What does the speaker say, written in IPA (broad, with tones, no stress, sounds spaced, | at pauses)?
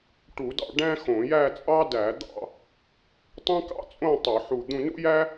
ʈ u˧˩˧ d ɑ̰˥˧ ɖ æ̃˥ x õ˧˩˧ j æ˥˧ t͡sʼ ɑ˥ d æ˧˩˧ d̪ ɑ̰˥˧ | tˤ æ̃˥ k ɑ̰˥ t͡sʼ õ˥˧ tˤ u˧˩˧ ħ u˧˩ d̪ ũ˥˧ n ṵ˥ j æ˥